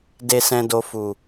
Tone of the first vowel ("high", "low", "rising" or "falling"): low